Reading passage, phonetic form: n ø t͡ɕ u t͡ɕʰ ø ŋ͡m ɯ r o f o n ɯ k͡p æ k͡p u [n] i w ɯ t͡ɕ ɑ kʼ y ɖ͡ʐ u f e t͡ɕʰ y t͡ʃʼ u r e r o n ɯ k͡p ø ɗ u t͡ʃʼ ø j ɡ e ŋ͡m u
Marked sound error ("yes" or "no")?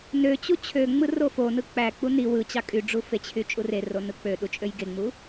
no